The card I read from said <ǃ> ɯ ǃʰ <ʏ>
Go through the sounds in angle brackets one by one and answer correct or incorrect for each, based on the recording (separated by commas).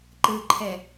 correct, incorrect